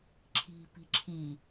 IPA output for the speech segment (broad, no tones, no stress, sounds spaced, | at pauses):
ǁʰ i̤ p i̤ ǁʰ i